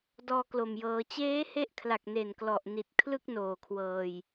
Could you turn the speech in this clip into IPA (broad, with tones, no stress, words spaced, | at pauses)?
dɔː˧klo˨˩mjɤː˧ t͡ɕeː˦˥he˦˥ʔkʰla˨˩k̚ ne˨˩nklɔ˨˩ʔni˨˩t̚ kʰlɯ˥˩k̚noː˨˩kʰwɤː˧j